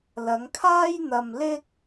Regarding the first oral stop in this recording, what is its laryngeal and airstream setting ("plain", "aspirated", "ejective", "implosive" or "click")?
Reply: aspirated